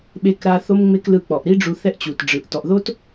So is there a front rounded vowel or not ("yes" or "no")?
no